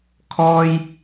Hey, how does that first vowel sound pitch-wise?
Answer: high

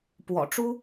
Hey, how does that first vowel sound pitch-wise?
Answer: low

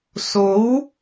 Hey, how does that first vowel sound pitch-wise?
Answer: rising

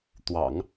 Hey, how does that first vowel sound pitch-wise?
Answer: low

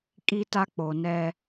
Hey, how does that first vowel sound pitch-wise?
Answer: high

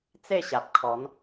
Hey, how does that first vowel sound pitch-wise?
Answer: falling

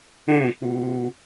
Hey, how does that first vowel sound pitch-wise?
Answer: falling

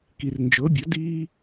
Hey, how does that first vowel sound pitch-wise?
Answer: low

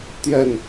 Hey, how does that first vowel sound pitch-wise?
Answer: falling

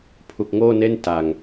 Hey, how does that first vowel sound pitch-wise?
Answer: low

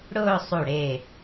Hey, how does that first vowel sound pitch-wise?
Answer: falling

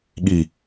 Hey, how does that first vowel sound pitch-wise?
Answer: low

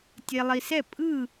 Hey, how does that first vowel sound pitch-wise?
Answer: low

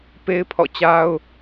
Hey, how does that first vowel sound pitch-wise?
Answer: high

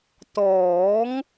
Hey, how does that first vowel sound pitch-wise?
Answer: rising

